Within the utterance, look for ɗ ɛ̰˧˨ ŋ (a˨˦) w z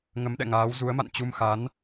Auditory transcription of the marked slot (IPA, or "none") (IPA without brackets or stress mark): aː˨˦